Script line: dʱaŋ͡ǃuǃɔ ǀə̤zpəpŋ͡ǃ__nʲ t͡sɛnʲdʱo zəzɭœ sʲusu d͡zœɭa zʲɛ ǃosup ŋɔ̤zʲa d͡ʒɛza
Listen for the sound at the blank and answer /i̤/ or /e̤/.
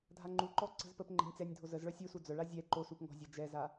e̤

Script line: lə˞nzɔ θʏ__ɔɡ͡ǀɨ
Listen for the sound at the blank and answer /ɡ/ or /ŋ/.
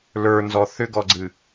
ɡ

